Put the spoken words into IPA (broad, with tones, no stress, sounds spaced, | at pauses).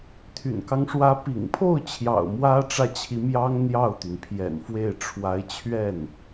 t̪ʰ y̰˨˩ n k ɑ˦ ŋ ʂ w ä˧˥ p ḭ˨˩ ŋ pʰ o˥˩ ʊ̯ t͡ɕʰ j ɑ̰˨˩ ʊ̯ m w ä˥ ʈ͡ʂ ä˥˩ t͡ɕʰ i˧˥ m j ɑ˥ ŋ n̪ j ɑ˥˩ ʊ̯ t̪ y˩ n pʰ j ɛ̰˨˩ n f w e˥˩ ɪ̯ ʈ͡ʂʰ w a˧˥ ɪ̯ t͡ɕʰ ɥ ɛ˥˩ n